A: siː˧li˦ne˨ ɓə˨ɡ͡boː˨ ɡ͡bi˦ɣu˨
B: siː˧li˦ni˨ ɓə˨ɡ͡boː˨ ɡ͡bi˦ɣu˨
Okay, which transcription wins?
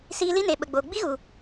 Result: A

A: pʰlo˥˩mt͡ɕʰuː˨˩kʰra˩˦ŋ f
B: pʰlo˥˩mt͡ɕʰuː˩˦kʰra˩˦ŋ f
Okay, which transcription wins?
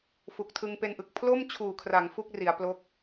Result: A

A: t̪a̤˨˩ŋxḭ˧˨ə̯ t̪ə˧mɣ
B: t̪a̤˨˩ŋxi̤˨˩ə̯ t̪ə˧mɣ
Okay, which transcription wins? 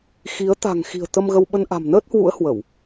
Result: B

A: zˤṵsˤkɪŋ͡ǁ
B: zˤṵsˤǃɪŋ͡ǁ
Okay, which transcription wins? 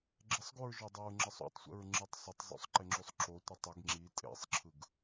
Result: B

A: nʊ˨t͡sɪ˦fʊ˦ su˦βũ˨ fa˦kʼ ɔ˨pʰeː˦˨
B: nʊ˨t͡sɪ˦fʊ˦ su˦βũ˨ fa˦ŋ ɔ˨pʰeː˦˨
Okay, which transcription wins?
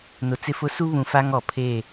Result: B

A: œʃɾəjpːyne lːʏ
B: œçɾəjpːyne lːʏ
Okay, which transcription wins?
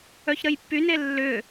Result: B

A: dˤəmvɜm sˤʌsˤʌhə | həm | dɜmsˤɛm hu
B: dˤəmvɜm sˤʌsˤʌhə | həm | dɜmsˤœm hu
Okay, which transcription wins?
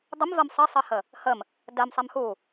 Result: A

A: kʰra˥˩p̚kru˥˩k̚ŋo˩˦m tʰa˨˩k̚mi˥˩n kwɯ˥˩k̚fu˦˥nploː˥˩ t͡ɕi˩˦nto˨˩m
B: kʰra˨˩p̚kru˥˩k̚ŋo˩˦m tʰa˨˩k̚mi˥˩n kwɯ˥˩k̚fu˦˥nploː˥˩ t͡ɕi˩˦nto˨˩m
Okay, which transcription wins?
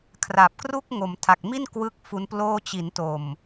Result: B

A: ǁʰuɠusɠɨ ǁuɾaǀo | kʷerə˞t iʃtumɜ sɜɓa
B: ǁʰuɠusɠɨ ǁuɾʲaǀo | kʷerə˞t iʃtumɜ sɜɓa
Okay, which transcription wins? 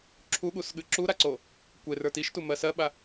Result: A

